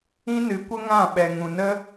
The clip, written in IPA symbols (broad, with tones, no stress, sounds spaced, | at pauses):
ĩ˦ n ɨ˨˦ kʷ ə˦ ŋ ã˦˨ ɓ ɛ˨ ŋ ũ˨ n ə˦